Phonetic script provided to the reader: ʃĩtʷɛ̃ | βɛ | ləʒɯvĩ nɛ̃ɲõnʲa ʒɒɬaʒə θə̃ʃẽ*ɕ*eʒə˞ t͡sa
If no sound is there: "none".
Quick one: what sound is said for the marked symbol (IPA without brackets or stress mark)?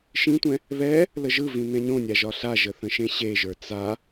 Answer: ɕ